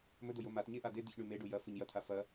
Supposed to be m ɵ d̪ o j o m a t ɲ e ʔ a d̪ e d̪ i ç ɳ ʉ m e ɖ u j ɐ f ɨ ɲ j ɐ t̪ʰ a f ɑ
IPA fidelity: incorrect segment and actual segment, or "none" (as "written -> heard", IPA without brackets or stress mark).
ɑ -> ɐ